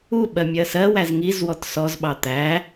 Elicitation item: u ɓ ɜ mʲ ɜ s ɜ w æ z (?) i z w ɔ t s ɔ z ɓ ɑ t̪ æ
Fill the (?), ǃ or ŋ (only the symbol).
ŋ